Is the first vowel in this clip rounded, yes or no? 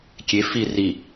no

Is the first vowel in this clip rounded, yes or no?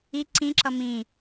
no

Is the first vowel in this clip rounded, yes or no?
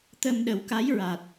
no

